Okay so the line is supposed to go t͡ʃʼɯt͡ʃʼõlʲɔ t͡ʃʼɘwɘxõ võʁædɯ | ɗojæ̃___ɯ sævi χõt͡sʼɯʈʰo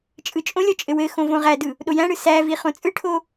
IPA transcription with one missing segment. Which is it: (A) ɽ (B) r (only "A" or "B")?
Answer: A